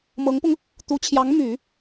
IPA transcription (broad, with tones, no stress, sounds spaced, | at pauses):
m ɤ˧˥ ŋ p ʊ˧ ŋ | t̪ u˧˥ t͡ɕʰ j ɑ˧˥ ŋ m y˨˩˦